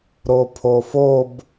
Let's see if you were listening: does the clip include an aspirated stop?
yes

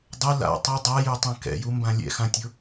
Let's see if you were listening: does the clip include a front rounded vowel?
no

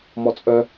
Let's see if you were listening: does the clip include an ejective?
yes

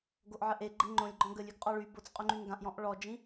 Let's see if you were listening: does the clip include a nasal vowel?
yes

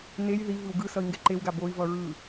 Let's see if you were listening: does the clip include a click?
yes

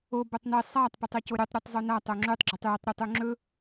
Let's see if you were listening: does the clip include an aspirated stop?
no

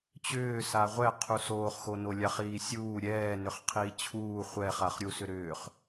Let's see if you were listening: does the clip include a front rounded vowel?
yes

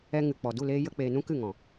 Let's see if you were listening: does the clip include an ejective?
no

